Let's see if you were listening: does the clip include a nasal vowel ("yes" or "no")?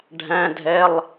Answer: yes